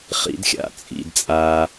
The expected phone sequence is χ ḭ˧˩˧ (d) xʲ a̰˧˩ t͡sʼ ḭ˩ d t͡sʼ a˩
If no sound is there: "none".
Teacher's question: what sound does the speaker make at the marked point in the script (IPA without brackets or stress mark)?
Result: d